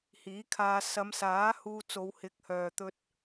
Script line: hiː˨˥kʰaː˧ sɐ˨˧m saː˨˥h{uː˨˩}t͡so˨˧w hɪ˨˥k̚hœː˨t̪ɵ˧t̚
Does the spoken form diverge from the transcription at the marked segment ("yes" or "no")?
yes